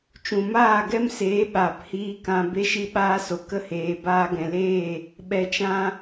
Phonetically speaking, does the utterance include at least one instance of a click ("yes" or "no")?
no